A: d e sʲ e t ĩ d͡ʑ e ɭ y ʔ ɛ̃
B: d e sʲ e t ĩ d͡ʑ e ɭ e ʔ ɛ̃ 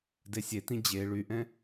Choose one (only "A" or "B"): A